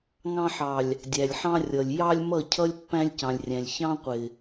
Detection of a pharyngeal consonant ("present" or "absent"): present